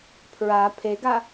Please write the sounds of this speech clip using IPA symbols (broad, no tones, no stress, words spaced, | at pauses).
pʰɹa pʰeɡa